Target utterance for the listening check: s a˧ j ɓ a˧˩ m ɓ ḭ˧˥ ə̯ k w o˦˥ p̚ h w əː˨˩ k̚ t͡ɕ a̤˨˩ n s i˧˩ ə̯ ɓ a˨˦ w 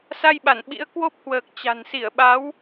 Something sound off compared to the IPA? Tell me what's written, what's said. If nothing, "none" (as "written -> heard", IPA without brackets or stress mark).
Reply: m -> n